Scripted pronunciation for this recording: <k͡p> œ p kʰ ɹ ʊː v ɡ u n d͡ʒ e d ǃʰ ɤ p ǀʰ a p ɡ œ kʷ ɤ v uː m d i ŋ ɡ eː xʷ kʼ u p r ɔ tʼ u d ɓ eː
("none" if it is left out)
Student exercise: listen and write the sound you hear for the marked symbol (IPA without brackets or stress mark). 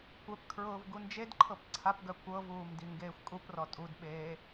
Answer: kʷ